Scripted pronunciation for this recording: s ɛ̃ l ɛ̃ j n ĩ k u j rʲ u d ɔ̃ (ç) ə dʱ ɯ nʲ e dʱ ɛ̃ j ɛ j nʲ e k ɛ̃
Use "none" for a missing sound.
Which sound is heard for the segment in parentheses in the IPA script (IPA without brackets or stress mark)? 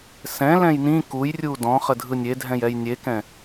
χ